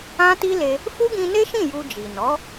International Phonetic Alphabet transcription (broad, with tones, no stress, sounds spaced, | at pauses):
ã˦ t i˦ l e˧ | f u˦ ɡ ĩ˧ n e˦ ʃ ĩ˦˨ j u˧ d͡ʒ i˨ n ɔ˨˦